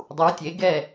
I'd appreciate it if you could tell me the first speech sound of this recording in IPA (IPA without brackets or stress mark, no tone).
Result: dˤ